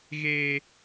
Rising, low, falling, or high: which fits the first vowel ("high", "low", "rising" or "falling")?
high